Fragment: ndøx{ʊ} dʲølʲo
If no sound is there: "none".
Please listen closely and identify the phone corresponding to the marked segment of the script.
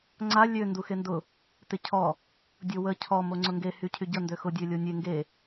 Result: ʊ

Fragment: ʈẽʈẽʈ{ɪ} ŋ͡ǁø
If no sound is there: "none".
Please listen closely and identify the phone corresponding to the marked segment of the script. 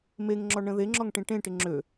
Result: ɪ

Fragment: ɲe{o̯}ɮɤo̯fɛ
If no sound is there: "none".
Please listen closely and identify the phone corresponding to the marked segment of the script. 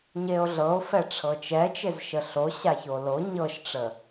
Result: o̯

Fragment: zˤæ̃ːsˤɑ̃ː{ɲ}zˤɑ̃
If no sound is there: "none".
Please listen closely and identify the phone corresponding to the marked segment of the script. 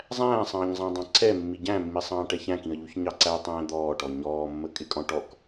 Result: ɲ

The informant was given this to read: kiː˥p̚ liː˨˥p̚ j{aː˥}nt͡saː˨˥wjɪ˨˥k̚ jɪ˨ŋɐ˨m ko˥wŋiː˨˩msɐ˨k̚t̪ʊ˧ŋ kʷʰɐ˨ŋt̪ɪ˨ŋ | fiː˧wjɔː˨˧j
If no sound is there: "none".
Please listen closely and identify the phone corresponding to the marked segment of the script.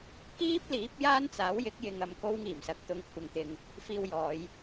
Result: aː˥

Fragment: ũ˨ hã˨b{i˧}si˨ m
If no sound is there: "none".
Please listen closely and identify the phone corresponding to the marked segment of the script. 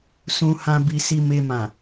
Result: i˨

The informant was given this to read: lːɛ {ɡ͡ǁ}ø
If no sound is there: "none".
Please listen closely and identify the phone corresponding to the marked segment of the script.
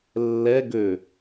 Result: ɡ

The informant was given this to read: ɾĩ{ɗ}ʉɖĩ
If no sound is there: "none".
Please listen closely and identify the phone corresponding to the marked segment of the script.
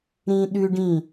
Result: ɗ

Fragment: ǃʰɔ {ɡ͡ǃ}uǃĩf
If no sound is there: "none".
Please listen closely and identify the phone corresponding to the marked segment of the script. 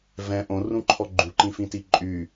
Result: ɡ͡ǃ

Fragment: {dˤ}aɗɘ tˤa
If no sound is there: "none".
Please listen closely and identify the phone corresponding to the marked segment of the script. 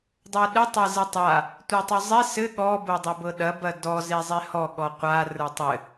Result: dˤ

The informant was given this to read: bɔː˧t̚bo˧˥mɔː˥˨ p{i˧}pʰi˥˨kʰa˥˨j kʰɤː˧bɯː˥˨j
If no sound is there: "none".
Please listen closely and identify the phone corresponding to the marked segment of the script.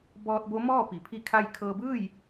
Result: i˩˧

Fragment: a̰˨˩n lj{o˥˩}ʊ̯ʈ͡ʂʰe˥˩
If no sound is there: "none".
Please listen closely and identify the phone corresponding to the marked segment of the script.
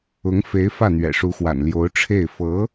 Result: o˧˥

